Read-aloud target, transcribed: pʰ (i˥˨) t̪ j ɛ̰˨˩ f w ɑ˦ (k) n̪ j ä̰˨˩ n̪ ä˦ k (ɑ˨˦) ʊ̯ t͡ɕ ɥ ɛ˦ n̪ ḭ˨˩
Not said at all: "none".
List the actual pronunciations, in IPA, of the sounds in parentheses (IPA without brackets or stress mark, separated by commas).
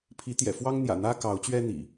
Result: i˨˦, ŋ, ɑ˨˦